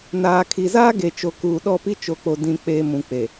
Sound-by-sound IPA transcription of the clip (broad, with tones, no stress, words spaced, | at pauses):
naː˨ kʰi˨zaː˦ ɡe˨t͡ʃo˨ kuː˨ɗɔ˦˨pi˦ t͡ʃo˨k͡po˨ dĩ˨k͡peː˨ mũ˨k͡pe˨